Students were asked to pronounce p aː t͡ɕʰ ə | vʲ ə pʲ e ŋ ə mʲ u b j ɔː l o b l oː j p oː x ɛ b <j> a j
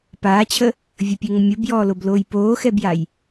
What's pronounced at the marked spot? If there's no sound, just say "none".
j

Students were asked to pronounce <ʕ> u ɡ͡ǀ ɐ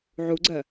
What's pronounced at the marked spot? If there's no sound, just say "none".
ʕ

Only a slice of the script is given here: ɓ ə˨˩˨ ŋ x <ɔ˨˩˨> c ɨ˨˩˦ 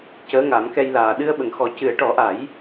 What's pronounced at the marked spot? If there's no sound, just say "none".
ɔ˨˩˦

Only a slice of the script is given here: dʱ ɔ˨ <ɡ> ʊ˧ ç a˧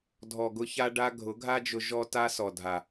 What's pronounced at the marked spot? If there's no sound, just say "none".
ɡ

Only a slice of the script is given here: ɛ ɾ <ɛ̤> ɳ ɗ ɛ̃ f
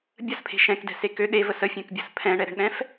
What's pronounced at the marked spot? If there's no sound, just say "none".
ɛ̤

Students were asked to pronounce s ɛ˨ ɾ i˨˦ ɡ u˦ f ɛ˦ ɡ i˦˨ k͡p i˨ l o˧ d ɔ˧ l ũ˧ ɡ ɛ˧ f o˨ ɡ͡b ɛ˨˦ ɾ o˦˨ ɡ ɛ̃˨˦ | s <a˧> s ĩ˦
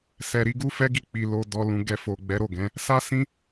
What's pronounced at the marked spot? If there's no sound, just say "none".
a˦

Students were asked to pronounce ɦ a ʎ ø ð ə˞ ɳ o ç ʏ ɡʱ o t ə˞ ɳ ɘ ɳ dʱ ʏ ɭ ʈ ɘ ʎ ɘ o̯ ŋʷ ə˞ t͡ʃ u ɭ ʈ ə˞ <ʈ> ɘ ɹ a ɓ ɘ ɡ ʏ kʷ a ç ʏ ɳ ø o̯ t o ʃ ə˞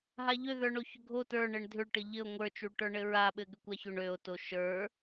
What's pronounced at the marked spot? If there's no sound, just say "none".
ɳ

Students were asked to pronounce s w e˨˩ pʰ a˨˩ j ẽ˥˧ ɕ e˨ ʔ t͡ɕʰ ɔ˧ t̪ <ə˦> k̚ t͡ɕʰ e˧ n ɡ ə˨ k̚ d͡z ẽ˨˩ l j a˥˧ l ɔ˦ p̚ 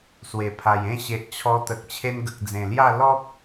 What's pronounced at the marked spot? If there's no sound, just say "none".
ə˨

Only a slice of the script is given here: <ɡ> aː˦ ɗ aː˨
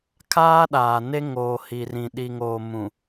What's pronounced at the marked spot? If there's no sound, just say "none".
kʰ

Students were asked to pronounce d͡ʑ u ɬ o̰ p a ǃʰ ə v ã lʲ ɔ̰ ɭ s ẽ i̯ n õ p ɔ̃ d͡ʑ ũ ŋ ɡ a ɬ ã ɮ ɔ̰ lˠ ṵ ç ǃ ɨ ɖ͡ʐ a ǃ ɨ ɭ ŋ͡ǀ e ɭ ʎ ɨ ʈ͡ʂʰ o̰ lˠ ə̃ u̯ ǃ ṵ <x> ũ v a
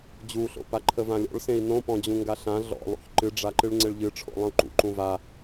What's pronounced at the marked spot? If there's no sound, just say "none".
ǃ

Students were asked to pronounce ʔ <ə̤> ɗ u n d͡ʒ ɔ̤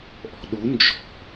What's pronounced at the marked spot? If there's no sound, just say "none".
ɔ̤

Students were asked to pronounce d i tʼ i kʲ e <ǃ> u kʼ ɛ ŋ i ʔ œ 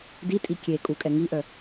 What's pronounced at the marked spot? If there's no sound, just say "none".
kʼ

